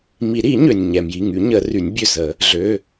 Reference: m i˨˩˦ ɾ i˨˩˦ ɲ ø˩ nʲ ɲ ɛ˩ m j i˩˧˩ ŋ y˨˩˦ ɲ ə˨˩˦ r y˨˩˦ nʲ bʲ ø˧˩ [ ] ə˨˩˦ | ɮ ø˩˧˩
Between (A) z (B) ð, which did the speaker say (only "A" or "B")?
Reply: A